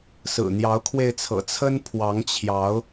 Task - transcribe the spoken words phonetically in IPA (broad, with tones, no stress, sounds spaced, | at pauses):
s ɹ̩˨˩ n̪ j ɑ˨˦ ʊ̯ kʰ w e˧ ɪ̯ t͡sʰ ɤ̰˨˩ t͡sʰ ə˦ n pʰ w ɑ˨˦ ŋ t͡ɕʰ j ɑ˨˦ ʊ̯